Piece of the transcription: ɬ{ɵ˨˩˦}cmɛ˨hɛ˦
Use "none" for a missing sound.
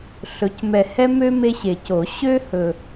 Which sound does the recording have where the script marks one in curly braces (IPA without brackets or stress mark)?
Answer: ɵ˩˥